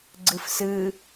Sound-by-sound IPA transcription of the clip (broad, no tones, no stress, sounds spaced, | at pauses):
ɡ͡ǀ ɯ f s ɯ